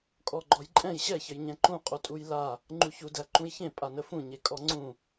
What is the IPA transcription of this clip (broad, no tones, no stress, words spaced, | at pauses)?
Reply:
kʼɔɡ͡ǃɔjǃʼɛ̃j ɕɛçəjɲɛ̃ ǃũqʼu tʼujla | ŋ͡ǃuçudæ ǃũjçẽ pʼanəfũ ɲekʼɔŋ͡ǀũ